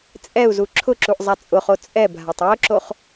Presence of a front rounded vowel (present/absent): absent